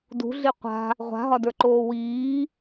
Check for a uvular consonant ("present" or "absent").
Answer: present